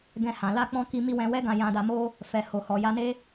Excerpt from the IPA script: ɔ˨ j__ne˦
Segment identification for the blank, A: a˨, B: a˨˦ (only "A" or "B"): B